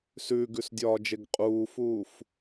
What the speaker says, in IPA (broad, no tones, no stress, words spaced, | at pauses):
sʉːɡʉsdʲɒːd͡ʒeɡ qʼuːfuːf